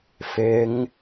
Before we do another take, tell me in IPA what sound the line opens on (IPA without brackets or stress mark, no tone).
f